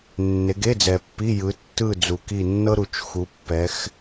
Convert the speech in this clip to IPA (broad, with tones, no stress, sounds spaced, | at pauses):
nː e˨˦ ɡ e˧˥˧ d͡z ɛ˨ pː i˧˥˧ j ɯ˨˦ tː ɯ˦˨ d͡z u˨ k i˦˨ nː ɤ˥ ɾ u˨ t͡ʃ x u˨˦ pː ɛ˨˦ x